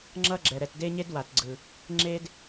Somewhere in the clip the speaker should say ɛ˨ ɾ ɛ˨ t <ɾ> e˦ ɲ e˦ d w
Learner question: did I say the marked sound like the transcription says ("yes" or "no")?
no